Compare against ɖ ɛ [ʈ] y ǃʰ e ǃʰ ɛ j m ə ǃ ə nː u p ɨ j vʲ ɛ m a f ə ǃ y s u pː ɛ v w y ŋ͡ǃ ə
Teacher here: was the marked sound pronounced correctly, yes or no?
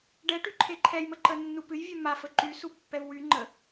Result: yes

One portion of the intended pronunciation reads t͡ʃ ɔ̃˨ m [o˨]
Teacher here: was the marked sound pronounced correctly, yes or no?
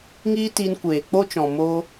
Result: no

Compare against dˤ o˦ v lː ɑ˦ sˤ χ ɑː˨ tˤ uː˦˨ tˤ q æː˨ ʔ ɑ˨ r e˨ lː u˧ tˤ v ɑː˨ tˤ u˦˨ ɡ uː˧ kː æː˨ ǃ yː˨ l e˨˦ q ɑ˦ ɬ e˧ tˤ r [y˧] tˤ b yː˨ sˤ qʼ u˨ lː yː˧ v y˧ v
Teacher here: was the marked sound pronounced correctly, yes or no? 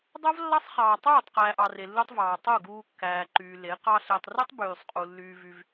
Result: no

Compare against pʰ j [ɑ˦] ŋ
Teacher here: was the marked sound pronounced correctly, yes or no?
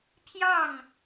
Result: no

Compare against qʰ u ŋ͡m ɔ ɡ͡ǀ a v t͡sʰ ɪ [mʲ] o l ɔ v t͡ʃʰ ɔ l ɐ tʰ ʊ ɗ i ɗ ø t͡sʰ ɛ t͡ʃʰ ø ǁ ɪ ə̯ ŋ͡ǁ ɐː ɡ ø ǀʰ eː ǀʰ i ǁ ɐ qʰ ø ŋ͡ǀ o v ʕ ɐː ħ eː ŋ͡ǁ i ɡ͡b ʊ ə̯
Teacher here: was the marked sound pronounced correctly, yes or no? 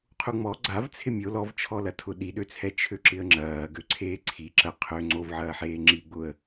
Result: yes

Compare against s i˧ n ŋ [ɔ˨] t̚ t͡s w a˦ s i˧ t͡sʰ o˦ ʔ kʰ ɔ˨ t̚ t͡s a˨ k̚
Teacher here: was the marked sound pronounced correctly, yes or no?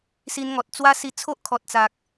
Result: yes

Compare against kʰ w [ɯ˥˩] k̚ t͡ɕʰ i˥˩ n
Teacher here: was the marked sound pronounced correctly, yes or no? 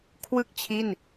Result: yes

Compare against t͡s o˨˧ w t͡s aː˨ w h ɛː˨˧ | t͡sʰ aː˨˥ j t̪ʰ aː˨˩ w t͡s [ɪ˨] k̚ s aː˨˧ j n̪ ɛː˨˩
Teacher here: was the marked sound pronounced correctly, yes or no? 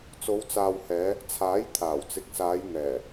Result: yes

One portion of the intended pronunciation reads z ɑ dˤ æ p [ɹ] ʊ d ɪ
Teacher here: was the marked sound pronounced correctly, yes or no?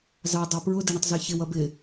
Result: yes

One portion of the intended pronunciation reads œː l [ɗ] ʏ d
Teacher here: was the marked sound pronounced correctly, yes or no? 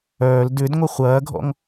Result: no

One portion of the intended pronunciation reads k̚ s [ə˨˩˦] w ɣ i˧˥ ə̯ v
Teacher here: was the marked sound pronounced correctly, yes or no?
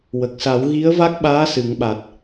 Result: no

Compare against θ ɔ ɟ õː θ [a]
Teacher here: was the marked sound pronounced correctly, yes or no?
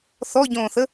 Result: no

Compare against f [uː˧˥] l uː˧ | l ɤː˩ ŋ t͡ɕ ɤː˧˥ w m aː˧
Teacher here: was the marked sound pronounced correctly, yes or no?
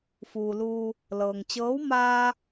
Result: no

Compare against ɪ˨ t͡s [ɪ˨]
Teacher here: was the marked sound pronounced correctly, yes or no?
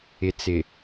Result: yes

